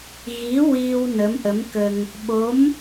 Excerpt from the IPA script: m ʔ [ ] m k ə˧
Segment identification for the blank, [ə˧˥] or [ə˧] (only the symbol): ə˧˥